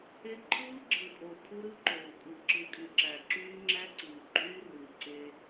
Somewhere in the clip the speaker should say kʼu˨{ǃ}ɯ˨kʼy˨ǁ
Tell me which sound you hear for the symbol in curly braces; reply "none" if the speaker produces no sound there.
ǁ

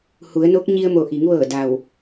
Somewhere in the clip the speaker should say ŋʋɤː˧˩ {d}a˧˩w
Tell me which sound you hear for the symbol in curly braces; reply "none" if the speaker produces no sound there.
d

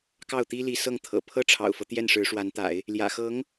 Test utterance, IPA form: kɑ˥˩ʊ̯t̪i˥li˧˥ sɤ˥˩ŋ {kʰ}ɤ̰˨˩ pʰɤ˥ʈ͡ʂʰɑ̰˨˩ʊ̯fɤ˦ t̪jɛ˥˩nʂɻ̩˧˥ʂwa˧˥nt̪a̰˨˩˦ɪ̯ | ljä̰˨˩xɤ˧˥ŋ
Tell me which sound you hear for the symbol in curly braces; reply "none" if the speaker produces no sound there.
t̪ʰ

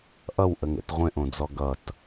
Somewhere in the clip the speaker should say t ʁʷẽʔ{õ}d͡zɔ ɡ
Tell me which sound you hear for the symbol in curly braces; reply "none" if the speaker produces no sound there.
õ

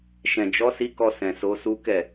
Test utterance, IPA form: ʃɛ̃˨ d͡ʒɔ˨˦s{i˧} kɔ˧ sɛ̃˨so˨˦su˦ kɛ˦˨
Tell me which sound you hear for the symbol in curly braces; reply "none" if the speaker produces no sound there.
i˧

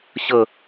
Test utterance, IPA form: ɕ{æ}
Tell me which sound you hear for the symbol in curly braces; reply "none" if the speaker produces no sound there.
ə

